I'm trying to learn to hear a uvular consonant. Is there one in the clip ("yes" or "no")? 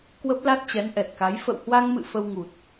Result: no